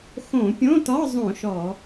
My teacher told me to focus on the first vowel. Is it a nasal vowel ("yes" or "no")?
yes